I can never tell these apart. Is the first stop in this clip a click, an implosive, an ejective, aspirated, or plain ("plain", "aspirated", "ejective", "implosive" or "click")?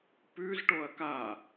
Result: plain